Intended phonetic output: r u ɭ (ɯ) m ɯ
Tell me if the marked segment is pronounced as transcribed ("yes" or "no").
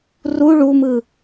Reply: no